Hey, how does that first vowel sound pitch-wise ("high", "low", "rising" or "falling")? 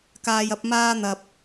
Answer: low